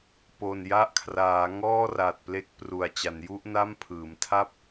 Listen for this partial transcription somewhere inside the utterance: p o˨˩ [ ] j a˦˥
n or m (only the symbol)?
n